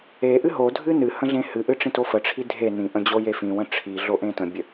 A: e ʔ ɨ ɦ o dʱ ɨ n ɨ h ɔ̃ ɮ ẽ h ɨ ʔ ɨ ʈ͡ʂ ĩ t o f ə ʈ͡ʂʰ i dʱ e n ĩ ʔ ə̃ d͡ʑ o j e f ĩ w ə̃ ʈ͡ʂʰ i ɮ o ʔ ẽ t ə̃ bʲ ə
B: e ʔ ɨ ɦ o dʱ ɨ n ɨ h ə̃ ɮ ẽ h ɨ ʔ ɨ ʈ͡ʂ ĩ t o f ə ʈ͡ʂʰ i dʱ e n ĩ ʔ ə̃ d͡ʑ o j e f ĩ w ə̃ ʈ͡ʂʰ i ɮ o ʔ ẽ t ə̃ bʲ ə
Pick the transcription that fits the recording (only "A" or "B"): B